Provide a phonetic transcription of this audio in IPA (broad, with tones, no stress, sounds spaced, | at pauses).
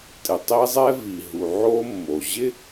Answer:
tʼ ɪ˩ tˤ i˥ zˤ ɛ˥ v i˩ ɦ u˩ ʕ o˥ mː o˩ ʑ ɪ˥